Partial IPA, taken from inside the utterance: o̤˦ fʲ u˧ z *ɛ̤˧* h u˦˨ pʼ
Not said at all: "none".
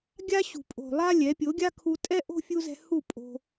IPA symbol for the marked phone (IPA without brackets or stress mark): ɛ̤˧